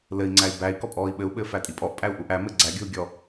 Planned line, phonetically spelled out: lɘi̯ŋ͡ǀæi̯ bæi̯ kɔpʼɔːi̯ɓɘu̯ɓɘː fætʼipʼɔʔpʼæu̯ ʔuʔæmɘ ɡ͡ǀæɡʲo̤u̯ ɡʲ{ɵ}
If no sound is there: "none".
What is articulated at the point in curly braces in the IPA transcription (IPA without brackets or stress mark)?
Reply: ɔ